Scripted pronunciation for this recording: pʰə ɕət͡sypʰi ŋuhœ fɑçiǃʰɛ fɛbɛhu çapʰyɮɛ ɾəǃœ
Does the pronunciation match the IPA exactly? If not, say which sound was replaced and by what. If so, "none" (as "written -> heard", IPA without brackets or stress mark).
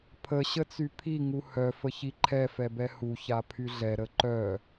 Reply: ɑ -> ə